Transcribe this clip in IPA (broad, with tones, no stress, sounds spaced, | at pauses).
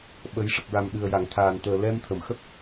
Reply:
ɓ ə˨˩˦ j ʂ ə˨˩ k̚ ɹ a˨˩ m ɗ ɨ˨˩ ə̯ j a˨˩˨ ŋ t̪ʰ aː˨˩ n t̪ əː˨˩ l ɛ˧ m t̪ʰ ə˨˩˨ m x ə˦˥ k̚